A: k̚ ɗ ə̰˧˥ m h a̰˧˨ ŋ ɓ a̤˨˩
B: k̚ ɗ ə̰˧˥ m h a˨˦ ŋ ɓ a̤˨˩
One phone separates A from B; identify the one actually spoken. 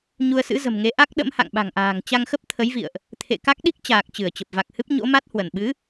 A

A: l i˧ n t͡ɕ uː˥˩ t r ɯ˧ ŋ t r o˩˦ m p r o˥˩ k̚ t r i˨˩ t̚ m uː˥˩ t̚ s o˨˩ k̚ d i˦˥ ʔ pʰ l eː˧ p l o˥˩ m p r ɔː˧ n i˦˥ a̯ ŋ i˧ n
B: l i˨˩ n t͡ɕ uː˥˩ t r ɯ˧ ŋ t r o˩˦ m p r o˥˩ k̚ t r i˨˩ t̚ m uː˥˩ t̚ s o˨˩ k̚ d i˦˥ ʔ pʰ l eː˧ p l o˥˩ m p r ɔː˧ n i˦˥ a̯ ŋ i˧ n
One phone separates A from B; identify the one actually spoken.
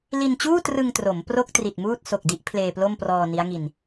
A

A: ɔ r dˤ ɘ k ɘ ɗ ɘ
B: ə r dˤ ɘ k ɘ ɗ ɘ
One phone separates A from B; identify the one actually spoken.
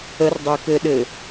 B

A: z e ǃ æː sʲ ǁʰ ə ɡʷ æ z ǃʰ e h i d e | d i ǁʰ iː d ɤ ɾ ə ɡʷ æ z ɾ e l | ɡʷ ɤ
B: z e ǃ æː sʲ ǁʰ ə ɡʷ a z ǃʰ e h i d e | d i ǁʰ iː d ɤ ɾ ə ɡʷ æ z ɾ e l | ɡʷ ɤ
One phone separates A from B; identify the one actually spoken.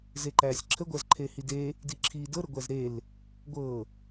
A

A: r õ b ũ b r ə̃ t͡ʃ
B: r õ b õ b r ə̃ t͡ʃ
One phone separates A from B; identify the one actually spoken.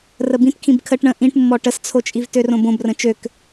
B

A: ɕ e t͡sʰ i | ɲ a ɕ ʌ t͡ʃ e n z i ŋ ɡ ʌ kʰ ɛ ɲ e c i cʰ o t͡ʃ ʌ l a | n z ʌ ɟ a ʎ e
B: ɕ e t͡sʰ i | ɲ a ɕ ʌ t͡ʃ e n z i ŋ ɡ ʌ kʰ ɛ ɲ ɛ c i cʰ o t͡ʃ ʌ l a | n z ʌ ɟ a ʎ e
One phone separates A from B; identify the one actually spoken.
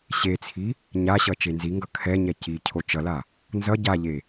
B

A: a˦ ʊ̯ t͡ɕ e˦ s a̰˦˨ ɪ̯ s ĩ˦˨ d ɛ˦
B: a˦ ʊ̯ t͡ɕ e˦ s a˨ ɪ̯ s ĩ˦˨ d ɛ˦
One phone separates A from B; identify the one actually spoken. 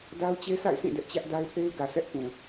A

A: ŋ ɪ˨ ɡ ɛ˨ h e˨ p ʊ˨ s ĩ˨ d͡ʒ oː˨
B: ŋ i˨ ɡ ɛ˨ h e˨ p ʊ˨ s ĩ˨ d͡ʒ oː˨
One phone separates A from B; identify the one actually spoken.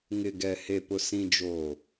A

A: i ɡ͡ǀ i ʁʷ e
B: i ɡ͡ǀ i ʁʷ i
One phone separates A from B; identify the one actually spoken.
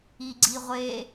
A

